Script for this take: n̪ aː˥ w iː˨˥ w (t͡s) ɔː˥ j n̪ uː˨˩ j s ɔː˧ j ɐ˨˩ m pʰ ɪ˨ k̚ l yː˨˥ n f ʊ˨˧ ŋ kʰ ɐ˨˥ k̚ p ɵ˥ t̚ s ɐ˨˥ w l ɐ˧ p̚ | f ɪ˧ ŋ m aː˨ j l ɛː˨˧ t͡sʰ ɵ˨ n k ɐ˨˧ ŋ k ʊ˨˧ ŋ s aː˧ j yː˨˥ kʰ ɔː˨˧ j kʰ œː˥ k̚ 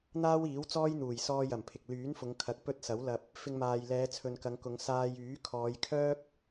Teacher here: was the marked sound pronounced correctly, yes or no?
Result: yes